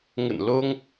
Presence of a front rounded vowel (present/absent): absent